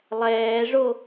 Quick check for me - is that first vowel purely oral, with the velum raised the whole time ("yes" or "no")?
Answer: yes